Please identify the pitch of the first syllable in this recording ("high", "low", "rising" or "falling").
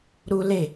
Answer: high